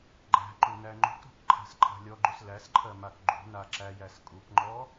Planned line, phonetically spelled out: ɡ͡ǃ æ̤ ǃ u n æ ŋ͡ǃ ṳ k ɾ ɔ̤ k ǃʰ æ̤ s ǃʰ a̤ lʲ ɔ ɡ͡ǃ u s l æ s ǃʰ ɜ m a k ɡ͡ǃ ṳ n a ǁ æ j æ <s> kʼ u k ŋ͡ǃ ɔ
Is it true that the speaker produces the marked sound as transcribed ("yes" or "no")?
yes